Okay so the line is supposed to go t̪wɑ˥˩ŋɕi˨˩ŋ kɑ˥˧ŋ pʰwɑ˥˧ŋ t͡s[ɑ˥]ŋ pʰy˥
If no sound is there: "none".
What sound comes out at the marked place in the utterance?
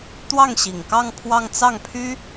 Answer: ɑ˥˩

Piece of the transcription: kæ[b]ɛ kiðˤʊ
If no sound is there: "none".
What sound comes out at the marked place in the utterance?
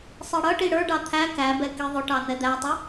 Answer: b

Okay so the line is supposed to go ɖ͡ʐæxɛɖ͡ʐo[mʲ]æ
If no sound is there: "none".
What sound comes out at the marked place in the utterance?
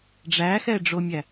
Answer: mʲ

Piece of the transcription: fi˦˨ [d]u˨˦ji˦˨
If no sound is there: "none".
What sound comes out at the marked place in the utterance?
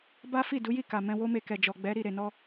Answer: d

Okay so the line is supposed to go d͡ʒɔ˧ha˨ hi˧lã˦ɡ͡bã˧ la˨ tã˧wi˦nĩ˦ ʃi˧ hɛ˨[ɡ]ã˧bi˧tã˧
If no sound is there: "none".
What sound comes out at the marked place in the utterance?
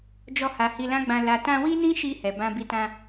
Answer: b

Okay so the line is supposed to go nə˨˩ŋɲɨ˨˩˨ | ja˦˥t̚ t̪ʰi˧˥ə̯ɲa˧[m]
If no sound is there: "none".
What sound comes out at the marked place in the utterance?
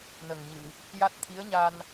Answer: n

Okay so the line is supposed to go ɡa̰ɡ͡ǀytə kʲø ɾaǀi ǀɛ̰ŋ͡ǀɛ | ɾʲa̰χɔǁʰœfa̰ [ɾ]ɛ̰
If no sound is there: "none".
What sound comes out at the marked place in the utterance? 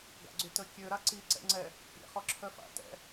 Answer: t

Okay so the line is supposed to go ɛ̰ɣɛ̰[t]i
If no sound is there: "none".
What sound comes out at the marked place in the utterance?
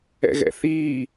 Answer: θ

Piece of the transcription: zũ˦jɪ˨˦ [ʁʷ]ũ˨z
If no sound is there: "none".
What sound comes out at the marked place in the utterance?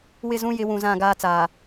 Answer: w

